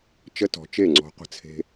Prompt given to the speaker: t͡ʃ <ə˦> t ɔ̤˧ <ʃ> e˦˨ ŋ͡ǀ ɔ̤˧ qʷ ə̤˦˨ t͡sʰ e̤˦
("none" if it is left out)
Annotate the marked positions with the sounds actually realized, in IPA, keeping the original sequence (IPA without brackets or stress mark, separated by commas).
ə˦, t͡ʃ